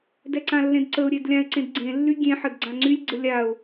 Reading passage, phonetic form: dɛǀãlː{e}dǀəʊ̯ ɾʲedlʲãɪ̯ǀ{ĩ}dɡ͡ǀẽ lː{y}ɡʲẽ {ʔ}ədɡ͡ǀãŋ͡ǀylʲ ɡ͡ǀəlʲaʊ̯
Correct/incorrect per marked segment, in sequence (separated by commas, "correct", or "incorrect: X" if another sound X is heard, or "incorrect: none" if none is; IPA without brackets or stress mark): incorrect: ẽ, incorrect: ẽ, correct, incorrect: ħ